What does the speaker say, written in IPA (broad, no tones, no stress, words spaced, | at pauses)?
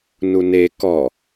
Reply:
nune kɔ